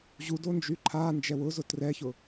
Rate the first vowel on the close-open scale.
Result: close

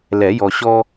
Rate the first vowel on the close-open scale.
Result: mid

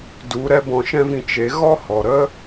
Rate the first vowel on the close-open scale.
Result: close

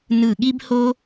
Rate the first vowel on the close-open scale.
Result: close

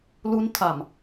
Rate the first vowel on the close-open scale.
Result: close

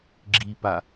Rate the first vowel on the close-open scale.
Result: close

